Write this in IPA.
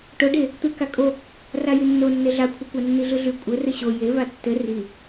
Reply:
ʈ o ɖ e | t̪ ɯ k a kʼ o | r a j y nː o nː e ɮ a kʷʰ a kʷ a nː i ɮ ɯ ɮ y kʷʼ ɘ r ɘ ɕ o j e v a tː ɘ r i

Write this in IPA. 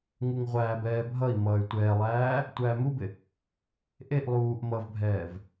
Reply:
ŋ u ŋ ʁʷ æː b ɛː bʱ ʌ i̯ m ʌː y̯ tʷ ɛː lˠ æː | tʷ æː m u b ɪ | ʔ e ʔ lˠ uː ʔ m ʌ v bʱ ɛː v

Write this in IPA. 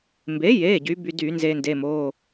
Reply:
m b e˩˥ j e˩˧˩ ɟ y˩˥ b y˧ d y˧˩˧ n z e˧ n d e˩˧˩ m o˩˧˩

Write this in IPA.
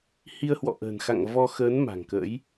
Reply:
h i˧ ə̯ h w ɔ̰˧˨ ʔ ə̤ː˨˩ n x a̰˧˨ ŋ v ɔ˧ x əː˨˦ n m a̤˨˩ ŋ k ə̰ː˧˥ j

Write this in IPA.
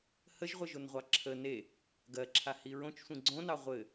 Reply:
h ə ʒ ʁʷ ɘ ʒ o n ʁʷ ɑ ǁʰ ə n e | ɡ ɜ ǁʰ a h i ɹ õ t͡ʃ sʷ ĩ ɡ͡ǀ õ n ɑ ʁʷ ɘ

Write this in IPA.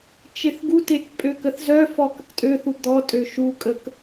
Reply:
t͡ʃ e θ ɡ u t e k pʼ ø k ə θ z œ f ɔ k ə k tʼ ø θ u d̪ ɔ tʼ ø ʃ u kʼ ə k

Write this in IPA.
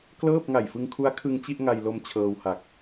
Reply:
k l ɤː˥˩ p̚ ŋ a˨˩ j f ɯ˧ ŋ kʰ u˦˥ a̯ kʰ ɯ˧ ŋ t͡ɕ i˥˩ ʔ ŋ a˧ j l o˧ m t͡ɕʰ ɤː˧ w h a˨˩ k̚

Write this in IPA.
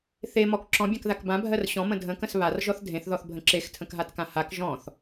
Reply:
θ e m ɔ k ǁ ɔ̃ bʲ ã k ð a k b ã bʱ ɜ r ɕ ɔ̃ m ə̃ dʱ ə̃ k ə̃ s β a r ʒ ɔ θ dʱ ẽ θ ð ɔ θ bʱ ə̃ ǁ e x tʰ ə̃ k ɦ a t k ã h a k ʒ ɔ̃ θ

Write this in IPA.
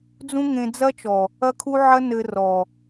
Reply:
d͡z ũ˦ ŋ ẽ˧ d͡z ɐ˦ t͡ʃ ɔ˨ | ɐ˦ kʰ u˦ ʕ ɐ˦ n ɘ˧ r ɔ˨

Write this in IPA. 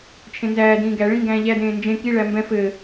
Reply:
t͡ʃʰ ẽ n z æː d ĩː ɡ æ ɭ ĩ ŋ ɡ æ̃ː ʎ æ d ẽː n d͡ʒ ẽ k i ɭ æ m b ɛ̃ f ɘː

